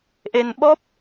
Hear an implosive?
yes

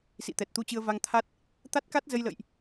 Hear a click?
no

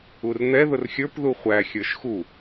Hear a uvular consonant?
yes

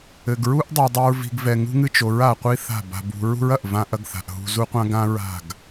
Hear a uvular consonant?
yes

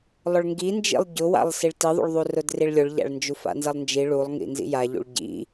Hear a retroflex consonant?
yes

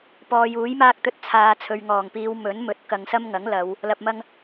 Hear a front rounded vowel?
no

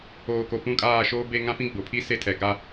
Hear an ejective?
yes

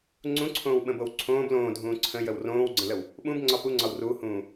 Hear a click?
yes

